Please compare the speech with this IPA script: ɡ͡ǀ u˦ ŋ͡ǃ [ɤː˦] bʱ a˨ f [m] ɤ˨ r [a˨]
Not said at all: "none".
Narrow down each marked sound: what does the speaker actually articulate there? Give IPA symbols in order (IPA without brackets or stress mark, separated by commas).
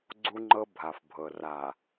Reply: ɤ˦, bʱ, a˨